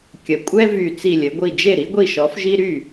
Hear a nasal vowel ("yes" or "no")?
no